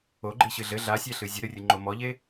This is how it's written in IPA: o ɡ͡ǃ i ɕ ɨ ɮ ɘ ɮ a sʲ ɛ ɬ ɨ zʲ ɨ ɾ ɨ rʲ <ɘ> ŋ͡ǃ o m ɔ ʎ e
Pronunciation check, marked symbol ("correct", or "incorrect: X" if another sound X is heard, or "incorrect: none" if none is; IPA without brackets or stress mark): correct